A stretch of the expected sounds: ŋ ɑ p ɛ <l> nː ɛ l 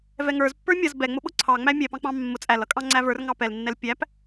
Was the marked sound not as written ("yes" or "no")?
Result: no